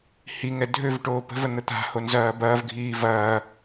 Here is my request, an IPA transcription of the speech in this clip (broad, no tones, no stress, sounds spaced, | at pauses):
h i ŋ ɛ dʱ ø v ʈ oː p ə̤ v ə n̪ ə t̪ a̤ h o n z ɐː b ɐː v ɡʱ iː v ɐː